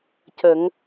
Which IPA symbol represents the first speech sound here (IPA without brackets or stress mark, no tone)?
c